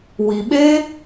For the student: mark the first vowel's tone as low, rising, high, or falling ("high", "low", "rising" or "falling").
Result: low